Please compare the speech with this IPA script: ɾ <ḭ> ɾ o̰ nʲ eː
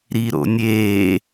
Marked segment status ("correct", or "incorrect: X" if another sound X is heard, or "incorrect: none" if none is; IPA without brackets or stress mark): incorrect: i